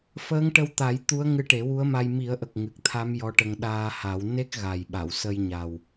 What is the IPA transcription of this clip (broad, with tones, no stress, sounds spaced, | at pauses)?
f əː˧˥ ŋ ʈ ə˧ w t̪ a˨˩˦ j t̪ u˧˥ ə̯ ŋ ɨ˧˥ ʈ e˨˩˦ w u˧˥ ə̯ m a˧ j m i˨˩˦ ə̯ ʔ ə˨˩ k̚ ŋ ɨ˨˩ k̚ t̪ʰ a˧˥ m j ɔ˧˥ ʈ ə˧ ŋ ɗ aː˧ h a˨˩˦ w n e˦˥ k̚ ɣ a˨˩ j ɓ a˨˩˨ w s ə˧ j ɲ a˨˩ w